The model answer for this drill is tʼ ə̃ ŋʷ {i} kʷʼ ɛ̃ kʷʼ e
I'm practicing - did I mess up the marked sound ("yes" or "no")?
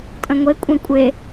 yes